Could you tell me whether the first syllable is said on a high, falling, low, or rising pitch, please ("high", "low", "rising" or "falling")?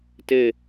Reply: falling